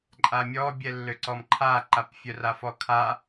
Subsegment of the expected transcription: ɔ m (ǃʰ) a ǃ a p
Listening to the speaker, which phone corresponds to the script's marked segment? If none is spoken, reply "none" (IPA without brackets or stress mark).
ǃʰ